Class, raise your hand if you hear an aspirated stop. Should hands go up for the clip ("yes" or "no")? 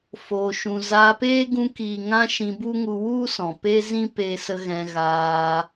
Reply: no